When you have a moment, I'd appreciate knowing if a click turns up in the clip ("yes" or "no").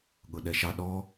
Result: no